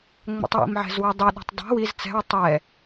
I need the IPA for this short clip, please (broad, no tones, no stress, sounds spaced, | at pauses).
ŋ͡m ɛ̰ tˤ w ḭ m ʕ ɛ̤ z w ɪ dˤ ʏ ɗ ɛ̤ tˤ dˤ i̤ w i z t͡s ɛ̤ w tˤ ɛ